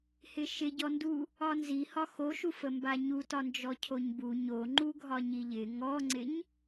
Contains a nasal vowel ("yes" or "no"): no